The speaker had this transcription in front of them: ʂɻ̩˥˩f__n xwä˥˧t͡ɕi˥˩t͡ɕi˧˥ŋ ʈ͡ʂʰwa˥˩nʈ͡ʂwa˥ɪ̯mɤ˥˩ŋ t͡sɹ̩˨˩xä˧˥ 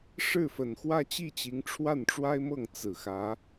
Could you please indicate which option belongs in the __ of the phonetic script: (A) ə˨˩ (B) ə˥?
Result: A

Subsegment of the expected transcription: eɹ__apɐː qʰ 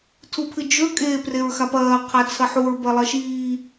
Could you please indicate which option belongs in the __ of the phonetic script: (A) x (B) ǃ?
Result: A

